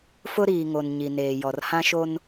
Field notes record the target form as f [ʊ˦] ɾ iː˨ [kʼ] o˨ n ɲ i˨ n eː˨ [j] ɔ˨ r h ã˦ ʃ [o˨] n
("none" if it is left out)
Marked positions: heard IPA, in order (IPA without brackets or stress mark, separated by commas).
ʊ˦, ŋ, j, o˦